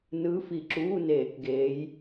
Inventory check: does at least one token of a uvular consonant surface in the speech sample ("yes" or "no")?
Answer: no